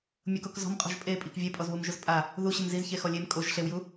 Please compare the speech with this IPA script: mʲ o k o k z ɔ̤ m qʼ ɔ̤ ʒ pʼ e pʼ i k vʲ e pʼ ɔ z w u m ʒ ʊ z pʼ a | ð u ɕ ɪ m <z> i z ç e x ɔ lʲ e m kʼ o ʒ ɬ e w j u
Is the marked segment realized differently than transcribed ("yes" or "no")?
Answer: no